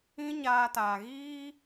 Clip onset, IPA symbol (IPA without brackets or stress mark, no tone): ĩ